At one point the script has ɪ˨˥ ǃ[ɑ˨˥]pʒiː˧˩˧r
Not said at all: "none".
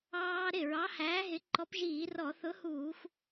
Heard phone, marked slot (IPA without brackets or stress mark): ɔ˨˥